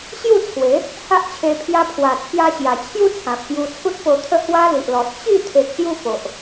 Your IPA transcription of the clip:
ɕju˥˧t͡sʰwe˨˦ | ha˦ʔt͡ɕʰe˧ pʰja˦ pʰwa˨˩t͡sʰja˧ɕja˨˩t͡ɕʰju˦ t͡sʰã˨p̚kju˧t͡sʰu˦t̚ po˧t̪ʰə˥˧ hwa˦li˨ʔlɔ˨t̚ t͡ɕi˥˧ t̪ʰe˨k̚ɕju˧ po˨ʔ

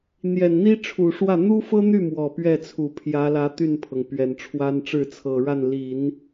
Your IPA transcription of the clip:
n̪jɛ˨˩nn̪i˥ʈ͡ʂʰu˨˩ʂwä˥˩ n̪u˥fɤ˥n̪y˥˩ mwɔ˨˩pɥɛ˥˩t͡sʰu˨˩ pʰjä˧˥lä˧˥ t̪y˥˩npʰɤ˩ŋpɥɛ˨˩nʈ͡ʂʰwa˥n ʈ͡ʂɻ̩˥˩t͡sʰɤ˨˩ɻa˥˩n li˨˩˦n

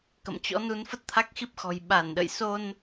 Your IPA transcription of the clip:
kə̰˧˨mt͡ɕɔ̰˧˥nu˨˦n fə˦˥t̚t̪ʰa˦˥k̚xi˦˥p̚xɔ̤˨˩j ɓa˧˩nɗə̰˧˨jso˧n

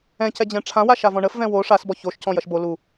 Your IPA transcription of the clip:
ɛ̃ cɛd͡ʑɛ̃ʈ͡ʂʰãwa ʃavɔ̃ɳəfvɛ̃ wo ʂasbɔ çoʃcɔ̃ jɐʃbo lu

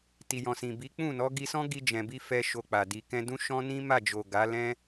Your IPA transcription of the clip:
ti˨jɔ̃˨sĩ˨bi˨˦ k͡pũ˦˨nɔ˨˦ ɡi˧sɔ̃˦ ɡi˧ d͡ʒɛ̃˨bi˧ fɛ˦ʃo˧k͡pa˨ di˨kɛ̃˧dũ˦ʃɔ̃˦ nĩ˦ma˦˨d͡ʒo˨ ɡa˨˦lɛ̃˦

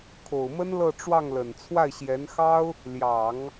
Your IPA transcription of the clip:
kʰo˨˩ʊ̯mə˥n lɤ˥˧ʈ͡ʂwɑ˥˩ŋlə˨˩n t͡sʰwa˥˩ɪ̯ɕjɛ˧˥n xɑ˥ʊ̯ | ljɑ˨˩˦ŋ

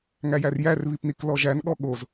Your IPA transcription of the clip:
ŋæjærjær βipniklɔʒæn ɠɔɠoz

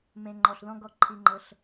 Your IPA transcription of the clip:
mẽ˨ŋ͡ǃɔ˨ɬðɔ̃˦ɡɔ˦˨ ǃʰi˦ŋ͡ǃɤ˦ɬ

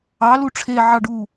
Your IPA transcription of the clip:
ɑ luʈ͡ʂʰe ʕɑɖu

